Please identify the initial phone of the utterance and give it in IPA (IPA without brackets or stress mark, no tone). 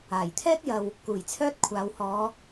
aː